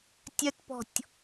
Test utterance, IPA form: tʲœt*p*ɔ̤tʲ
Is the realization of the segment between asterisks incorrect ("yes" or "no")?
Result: no